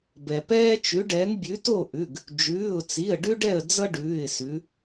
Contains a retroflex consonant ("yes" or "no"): yes